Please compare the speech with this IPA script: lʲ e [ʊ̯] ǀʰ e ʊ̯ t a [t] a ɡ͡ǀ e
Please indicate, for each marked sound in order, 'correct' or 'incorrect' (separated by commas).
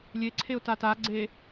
incorrect, correct